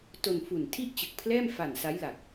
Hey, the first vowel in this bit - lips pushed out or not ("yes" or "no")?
yes